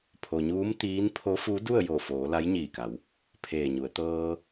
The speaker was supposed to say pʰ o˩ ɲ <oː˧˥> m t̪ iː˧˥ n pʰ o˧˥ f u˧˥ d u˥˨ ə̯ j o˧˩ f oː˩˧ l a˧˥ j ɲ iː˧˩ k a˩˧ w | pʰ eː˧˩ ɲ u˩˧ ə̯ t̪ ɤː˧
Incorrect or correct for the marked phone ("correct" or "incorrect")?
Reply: incorrect